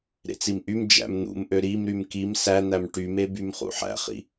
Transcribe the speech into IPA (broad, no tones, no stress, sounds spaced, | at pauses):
ɾ ḛ t͡s i m ʔ y m d͡ʒ æ̰ m n̪ ṵ m ʔ ø ɾ i m ɾ y m k i m s æ n̪ æ m ʈ y m e b y m χ ṵ ħ æ̰ χ ḭ